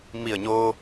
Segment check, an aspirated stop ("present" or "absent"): absent